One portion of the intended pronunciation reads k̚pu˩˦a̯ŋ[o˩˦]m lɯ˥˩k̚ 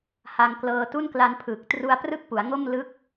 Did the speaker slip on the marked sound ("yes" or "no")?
yes